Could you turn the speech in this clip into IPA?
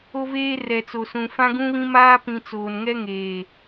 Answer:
o˦ v eː˦ r ɛ˨ t͡s o˨ s ũ˨ f ã˦ ɡ ũ˦ β ĩ˦ m aː˦ p ĩ˨ t͡s oː˨ n ŋ ɛ˦ ŋ eː˨

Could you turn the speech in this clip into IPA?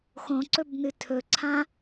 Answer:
x õ ǀ ɵ b n ɨ tʰ ɵ ǀʰ ã

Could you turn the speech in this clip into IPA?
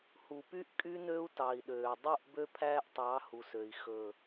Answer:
h u˨ p y˦ ʔ kʼ y˦ n ø˦ u̯ t ɑ˨ i̯ ɗ øː˨ dˤ u˦˨ ʔ b ø˦ pʰ æː˦ ʔ tˤ ɑ˨˦ h u˨ s ø˨ i̯ x ɵ˨

